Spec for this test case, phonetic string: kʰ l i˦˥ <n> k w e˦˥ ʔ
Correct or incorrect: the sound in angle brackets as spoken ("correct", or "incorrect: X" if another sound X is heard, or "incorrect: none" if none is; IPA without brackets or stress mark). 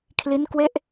correct